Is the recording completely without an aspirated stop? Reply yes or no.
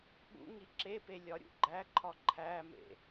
no